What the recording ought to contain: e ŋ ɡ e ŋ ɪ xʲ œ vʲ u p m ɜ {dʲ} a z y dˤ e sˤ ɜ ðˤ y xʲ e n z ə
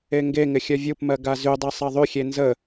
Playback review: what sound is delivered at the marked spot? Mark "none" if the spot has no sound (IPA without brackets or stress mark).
ɡ